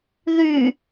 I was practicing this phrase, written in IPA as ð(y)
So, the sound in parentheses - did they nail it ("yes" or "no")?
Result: yes